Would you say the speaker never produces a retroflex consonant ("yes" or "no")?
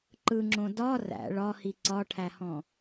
no